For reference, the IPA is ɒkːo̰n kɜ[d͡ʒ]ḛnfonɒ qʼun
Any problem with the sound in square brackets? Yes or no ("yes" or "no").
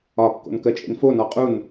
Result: yes